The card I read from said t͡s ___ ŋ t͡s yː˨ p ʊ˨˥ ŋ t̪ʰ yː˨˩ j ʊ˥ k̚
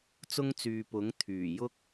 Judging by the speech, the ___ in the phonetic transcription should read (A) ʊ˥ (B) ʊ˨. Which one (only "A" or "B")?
A